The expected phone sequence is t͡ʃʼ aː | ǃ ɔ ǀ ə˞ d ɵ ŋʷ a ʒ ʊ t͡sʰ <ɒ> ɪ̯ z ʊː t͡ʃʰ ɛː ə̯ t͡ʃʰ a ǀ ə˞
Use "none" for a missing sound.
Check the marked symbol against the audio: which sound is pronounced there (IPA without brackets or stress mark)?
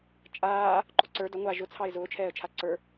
ɑ